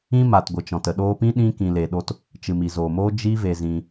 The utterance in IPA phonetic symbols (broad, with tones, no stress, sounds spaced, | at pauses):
ĩ˦ m a˨ t ɡʷ ɨ˨ t͡ʃ ɔ̃˨ t ə˨ ɗ oː˧ p ĩ˦ ɗ ĩ˦ k ĩ˧ l e˧ ɗ o˦ t | t͡ʃ ɨ˨ m i˨ z oː˨ m oː˦ d͡ʒ i˦ v e˧ z ĩ˧